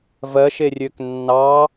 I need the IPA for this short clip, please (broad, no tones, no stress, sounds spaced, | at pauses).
v ɜ ʃ e rʲ ø k nː ɑ